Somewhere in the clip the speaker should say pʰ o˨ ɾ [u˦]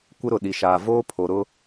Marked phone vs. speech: incorrect: ʊ˦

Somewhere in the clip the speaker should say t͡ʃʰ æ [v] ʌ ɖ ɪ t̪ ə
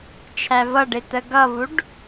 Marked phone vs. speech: correct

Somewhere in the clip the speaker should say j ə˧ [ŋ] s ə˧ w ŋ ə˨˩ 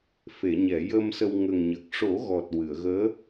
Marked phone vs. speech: incorrect: m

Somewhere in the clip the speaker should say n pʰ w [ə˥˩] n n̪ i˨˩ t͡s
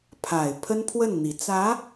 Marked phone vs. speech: correct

